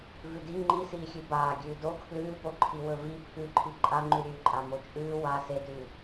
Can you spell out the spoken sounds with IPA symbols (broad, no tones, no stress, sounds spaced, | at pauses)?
v ʉ d i ŋ͡ǃ i s iː xʲ ʉ b aː ɡʲ ʉː d o kʰ l ʉː p o ǃʰ i w ɵ v i pʰ ʉ ǃʰ i ǃʼ a ŋ͡ǃ ʉ ɾʲ ʉː ǃʼ a m o t͡ʃʼ ʉː w a s e d ʉː